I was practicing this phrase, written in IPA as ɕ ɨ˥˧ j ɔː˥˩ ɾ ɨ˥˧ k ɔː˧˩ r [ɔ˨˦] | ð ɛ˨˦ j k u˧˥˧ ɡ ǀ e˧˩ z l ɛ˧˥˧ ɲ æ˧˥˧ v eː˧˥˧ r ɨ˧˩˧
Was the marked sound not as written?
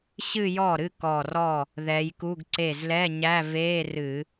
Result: yes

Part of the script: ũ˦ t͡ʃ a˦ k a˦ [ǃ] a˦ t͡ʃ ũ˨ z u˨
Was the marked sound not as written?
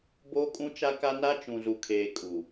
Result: yes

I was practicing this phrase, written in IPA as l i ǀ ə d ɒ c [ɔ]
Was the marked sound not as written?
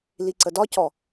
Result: no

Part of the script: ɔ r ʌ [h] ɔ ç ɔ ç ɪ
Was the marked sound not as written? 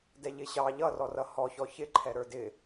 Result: no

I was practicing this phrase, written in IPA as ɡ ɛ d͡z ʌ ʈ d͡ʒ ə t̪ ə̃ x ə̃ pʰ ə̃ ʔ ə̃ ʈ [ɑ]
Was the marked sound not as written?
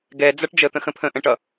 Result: yes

